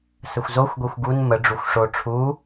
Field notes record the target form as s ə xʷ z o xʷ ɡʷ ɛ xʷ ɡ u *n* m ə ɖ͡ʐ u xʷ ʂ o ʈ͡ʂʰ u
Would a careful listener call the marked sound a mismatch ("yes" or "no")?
no